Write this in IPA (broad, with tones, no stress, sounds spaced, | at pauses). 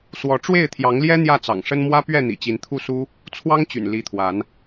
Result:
s w ɔ˨˦ ʈ͡ʂ w e˥˨ ɪ̯ t̪ʰ j ɑ˨˦ ŋ l j ɛ˦ n̪ j ä˥˨ t͡s ɑ̰˨˩ ŋ ʂ ə˦ n m w ä˦ p ɥ ɛ˥˨ n̪ ḭ˨˩ t͡ɕ i˨˦ n t̪ʰ u˥˨ s u˦ | t͡sʰ w ɑ˦ ŋ t͡ɕ y̰˨˩ n l i˨˦ t̪ʰ w a˨˦ n